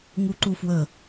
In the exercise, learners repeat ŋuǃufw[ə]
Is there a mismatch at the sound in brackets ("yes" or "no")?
no